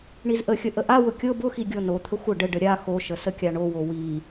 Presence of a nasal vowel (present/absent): absent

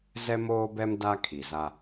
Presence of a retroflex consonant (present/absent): absent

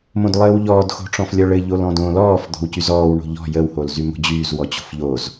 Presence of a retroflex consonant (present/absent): present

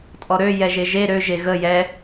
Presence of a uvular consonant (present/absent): absent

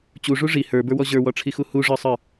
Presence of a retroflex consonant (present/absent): present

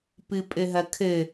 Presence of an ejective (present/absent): present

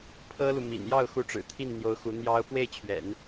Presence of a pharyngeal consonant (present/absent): absent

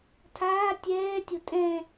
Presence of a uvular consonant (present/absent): absent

